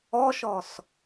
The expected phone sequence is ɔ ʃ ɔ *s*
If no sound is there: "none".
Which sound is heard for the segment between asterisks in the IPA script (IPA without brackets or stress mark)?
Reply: s